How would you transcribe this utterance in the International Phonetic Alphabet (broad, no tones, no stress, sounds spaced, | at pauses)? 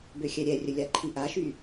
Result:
b ø xʲ ɛ ɾʲ ɛ rʲ ə lʲ a ǃʰ i ʔ a ʃ y